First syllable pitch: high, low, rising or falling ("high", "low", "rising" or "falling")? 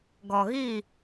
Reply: low